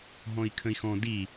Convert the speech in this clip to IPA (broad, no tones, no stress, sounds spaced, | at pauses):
ɦ ɔ̃ i̯ kʰ ə̃ i̯ x ɔ̃ d i